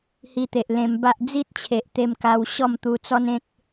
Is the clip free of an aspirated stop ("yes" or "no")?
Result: no